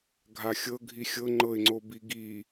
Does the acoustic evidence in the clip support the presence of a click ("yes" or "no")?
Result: yes